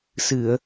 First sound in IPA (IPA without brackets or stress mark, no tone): s